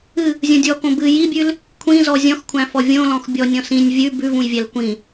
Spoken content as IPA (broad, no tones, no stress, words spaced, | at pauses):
ɨ | zʲõdʲɔkõ bɨ jibʲʉl | kʷʰĩzɔ zʲɔ̃xkʷʰæ̃fɔ vʲõlɔ̃x bʲɔnʲɔ̃s ĩnʲ vʲʉ bʉvũjvʲæl kʷĩ